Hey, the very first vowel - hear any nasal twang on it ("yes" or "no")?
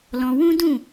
yes